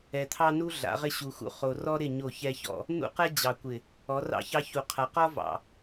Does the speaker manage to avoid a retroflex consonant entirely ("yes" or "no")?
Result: yes